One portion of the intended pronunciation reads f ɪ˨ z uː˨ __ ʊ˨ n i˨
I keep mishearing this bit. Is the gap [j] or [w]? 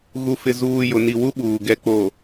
j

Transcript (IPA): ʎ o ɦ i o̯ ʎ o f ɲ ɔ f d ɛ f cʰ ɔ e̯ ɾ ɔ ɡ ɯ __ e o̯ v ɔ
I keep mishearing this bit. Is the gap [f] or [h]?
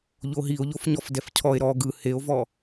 h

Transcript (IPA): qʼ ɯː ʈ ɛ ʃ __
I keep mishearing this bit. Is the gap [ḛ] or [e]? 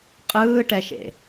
ḛ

